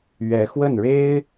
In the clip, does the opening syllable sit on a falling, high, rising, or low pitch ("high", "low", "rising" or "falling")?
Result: rising